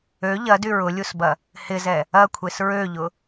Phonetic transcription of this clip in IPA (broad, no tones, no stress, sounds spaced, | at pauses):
ø ʎ ɐ d y ɹ ʊ lʲ u s b ɐ | h ɪ z ɛ | ɐ kʷʰ e s ɹ ø ʎ ʊ